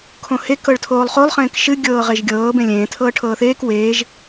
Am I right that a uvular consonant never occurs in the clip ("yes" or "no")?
no